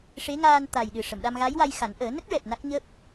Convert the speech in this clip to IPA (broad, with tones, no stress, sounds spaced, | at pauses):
ʂ e˧˥ ŋ aː˧ n t̪ a˨˩ j ɗ ɨ˨˩ ʂ ə˨˩˨ m ɗ a˧ m ɣ a˧˥ j w a˧ j x a˨˩˦ n ʔ əː˨˩˦ n ə˦˥ k̚ ɹ ɛ˨˩ p̚ n a˦˥ k̚ ɲ əː˦˥ p̚